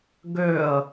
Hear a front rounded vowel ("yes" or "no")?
yes